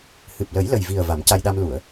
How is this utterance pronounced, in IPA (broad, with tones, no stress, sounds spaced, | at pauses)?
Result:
h ɨ˨˩ p̚ l ə˨˩˦ j l ə˨˩ j v i˨˩ ə̯ v a˨˩˦ m c a˧ j ɗ a˧ m l u˨˩˨ ə̯